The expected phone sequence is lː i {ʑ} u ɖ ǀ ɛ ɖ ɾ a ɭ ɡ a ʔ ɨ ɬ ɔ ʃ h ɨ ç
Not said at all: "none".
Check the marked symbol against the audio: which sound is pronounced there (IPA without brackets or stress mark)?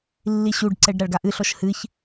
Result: ɕ